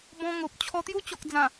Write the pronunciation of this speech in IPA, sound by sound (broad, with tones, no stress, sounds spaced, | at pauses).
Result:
b ɔ̃˧ ŋ o˨ p̚ t͡ɕʰ ɔ˧ t̪ j u˦ t͡ɕ ɔ˨ k̚ d͡z ã˨˩